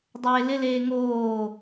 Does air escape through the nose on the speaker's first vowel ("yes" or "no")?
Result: no